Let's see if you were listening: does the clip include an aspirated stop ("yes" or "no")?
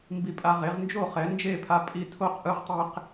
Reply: yes